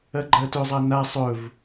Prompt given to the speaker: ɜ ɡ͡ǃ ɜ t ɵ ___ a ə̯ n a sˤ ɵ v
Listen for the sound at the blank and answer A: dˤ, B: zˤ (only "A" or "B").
B